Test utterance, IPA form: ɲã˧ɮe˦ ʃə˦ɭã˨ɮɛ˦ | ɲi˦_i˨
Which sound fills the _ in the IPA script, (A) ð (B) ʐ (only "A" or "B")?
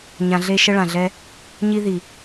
A